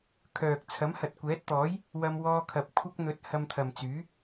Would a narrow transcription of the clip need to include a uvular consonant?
no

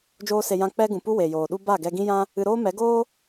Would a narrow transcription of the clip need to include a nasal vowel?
yes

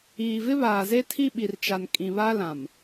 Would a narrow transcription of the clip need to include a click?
no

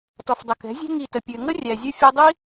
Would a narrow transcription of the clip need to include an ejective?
no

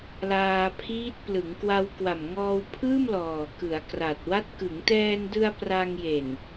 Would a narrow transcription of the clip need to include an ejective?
no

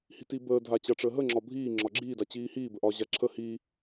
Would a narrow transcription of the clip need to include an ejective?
no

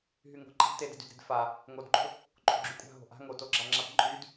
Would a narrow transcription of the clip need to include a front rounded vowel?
yes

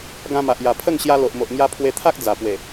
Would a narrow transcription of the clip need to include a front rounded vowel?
no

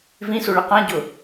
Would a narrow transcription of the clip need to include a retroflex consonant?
yes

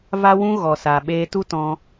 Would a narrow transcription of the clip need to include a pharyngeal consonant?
no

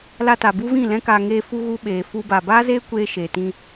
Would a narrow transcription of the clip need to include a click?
no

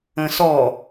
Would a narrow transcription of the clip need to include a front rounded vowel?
no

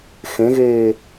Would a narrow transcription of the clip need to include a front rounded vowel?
no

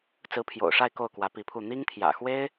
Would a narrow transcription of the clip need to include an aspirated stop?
yes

